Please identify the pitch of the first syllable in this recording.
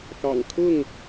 low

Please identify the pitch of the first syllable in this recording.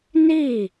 falling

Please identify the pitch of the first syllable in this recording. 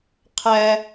high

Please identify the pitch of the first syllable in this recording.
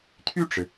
falling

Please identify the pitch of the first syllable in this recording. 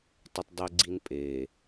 high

